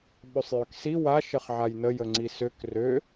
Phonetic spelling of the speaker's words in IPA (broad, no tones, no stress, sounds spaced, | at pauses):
ɓ ø sˤ j ø k s i w a ʃ ə χ ʕ a j n ə j ə ŋ͡ǀ i s ø k r ø